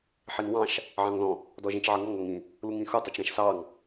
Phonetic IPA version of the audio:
ħinwɑ̃ʃ | ʕɑ̃ŋðɔ̃ | dɔʒĩt͡ʃʕʌŋɔŋ ɔŋĩ | luŋĩxu tˤɘt͡ʃɾɛ̃ʃsɑŋ

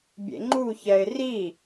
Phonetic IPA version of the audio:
bʲḛŋ͡ǃuçɛɪ̯ ri

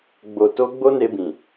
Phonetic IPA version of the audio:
ɡ͡bo˨ to˧ ɡ͡bo˦ne˧bĩ˨

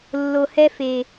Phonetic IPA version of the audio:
lːo˨hɛ˦ fe˨

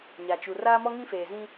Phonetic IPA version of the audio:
ɲa˨t͡ʃu˨ raː˦mɔ˦ ŋĩ˦feː˨zĩ˦

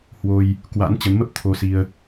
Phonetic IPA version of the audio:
hwo˧j | kwa̰˧˥n t͡ɕə˨˦nmə˦˥p̚ t̪ʰo˧si˧ə̯

